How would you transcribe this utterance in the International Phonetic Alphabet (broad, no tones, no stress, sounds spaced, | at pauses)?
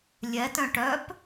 lʲ ɛ t œ̃ ʈ œ p